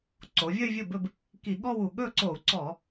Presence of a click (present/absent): present